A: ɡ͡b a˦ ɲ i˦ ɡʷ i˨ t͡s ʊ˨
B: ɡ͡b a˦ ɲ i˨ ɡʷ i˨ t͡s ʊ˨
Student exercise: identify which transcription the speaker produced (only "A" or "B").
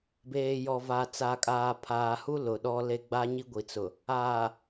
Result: A